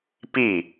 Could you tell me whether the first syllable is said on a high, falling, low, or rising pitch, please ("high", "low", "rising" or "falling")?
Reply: falling